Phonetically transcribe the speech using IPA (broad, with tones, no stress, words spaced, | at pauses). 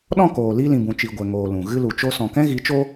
ɗɔ̃˦˨koː˨li˧lĩ˨ bũ˨t͡ʃi˨ ɡʷɛ˨ŋoː˨ lũ˨ ɣɨ˦ lu˨t͡ʃo˧ sɔ̃˨kɛ̃˦ɣi˨˦t͡ʃo˦